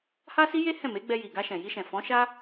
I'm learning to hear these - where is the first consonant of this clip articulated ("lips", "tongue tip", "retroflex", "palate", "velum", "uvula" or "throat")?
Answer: throat